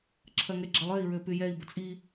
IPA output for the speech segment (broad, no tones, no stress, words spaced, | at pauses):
ǁʰɐŋɛɡ͡ǁɐlˠøi̯ ɹøpyjɛi̯ bət͡sʼi